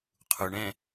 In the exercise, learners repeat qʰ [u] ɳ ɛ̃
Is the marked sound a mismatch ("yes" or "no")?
no